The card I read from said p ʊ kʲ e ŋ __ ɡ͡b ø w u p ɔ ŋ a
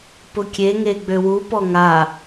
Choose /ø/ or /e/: e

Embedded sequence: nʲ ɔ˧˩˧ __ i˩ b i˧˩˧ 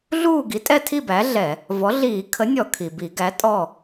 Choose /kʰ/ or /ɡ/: kʰ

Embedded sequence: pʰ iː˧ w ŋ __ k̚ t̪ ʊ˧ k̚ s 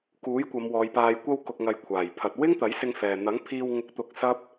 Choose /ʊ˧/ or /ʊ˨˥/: ʊ˧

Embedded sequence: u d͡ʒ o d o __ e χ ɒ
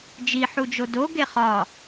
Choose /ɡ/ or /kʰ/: ɡ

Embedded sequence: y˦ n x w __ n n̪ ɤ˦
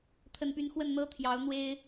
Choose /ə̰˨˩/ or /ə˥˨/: ə˥˨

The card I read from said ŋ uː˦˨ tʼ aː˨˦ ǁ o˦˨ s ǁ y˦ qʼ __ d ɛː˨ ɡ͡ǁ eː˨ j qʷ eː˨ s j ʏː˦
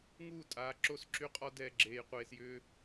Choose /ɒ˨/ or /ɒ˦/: ɒ˦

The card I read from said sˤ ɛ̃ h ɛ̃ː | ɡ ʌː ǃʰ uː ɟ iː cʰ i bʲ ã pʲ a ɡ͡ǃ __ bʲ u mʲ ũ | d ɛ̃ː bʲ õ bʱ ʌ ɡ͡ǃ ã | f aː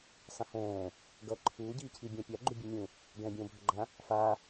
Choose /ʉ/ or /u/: u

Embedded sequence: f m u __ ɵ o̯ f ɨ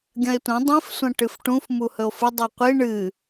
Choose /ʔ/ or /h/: h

